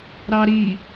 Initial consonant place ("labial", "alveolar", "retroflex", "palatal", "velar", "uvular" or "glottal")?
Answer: alveolar